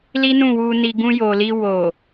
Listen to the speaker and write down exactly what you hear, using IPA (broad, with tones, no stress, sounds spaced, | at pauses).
l i˦ n ũ˦˨ w u˧ n i˧ ɡ ũ˧ j o˨ l i˧ w o˨